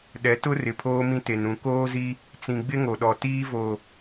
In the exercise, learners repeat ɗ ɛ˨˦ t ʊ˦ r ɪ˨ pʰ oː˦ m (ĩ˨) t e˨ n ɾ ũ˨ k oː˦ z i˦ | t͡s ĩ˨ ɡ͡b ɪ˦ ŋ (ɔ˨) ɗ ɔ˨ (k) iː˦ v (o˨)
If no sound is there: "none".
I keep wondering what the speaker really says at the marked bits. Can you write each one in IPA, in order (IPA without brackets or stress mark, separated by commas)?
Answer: ĩ˦, o˨, t, o˨